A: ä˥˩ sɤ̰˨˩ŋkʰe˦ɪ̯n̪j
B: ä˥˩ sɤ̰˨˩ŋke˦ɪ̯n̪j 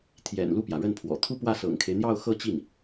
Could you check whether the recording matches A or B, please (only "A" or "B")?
A